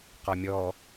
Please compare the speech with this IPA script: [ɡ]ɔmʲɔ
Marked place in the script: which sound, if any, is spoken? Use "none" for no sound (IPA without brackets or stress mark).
q